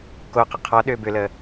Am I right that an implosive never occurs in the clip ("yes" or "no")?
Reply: no